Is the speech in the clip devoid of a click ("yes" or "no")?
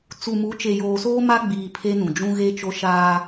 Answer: yes